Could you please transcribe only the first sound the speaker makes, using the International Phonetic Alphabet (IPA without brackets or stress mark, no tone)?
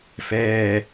f